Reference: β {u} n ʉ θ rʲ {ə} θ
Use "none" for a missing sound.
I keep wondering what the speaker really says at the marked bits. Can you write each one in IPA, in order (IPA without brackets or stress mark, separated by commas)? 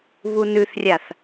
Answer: u, a